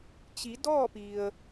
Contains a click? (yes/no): no